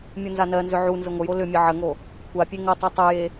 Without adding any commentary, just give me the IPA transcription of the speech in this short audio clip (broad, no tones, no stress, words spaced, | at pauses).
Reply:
mʲonzanɜnzʏ ʕunzə ŋʷəjo lʏmʲə ʕəŋo | kʷʰapʲe ŋətˤʏ tˤʏje